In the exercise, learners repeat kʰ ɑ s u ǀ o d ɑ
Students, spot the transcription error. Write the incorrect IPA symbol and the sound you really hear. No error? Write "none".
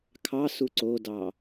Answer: none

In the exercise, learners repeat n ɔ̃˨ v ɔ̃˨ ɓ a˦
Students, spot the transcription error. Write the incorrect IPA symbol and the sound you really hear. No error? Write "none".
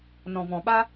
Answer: none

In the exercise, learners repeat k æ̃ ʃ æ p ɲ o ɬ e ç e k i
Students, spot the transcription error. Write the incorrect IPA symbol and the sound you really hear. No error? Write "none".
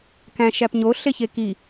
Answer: none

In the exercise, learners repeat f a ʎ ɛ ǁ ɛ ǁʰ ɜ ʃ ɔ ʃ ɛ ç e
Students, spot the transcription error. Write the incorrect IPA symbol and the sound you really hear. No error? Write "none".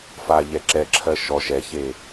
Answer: none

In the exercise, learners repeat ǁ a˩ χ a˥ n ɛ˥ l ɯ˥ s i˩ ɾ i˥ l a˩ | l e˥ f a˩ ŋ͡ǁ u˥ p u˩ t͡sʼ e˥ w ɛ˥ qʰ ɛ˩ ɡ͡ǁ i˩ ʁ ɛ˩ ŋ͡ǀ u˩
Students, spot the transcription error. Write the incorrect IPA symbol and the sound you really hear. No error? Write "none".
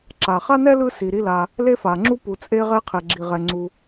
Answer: w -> ʁ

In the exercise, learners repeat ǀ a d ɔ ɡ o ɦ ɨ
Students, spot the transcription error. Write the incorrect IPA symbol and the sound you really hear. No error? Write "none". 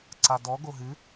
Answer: none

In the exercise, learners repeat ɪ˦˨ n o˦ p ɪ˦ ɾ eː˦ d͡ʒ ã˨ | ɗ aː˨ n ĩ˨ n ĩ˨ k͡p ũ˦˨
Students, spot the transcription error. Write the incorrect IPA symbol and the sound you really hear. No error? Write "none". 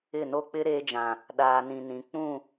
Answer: p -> k͡p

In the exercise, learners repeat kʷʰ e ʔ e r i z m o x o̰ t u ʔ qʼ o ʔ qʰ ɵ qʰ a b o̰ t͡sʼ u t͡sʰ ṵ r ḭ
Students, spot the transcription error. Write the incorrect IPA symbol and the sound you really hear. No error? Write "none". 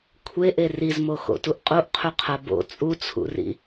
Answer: none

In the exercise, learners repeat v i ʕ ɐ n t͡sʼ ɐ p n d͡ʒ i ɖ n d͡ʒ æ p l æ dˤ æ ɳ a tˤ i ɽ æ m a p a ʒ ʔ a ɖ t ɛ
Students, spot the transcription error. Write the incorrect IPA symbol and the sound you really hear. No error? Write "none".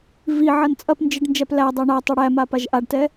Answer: none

